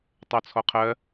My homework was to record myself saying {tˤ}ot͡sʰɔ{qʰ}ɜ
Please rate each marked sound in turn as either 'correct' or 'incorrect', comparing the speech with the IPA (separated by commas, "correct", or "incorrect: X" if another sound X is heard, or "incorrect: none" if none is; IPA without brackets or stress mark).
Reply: correct, correct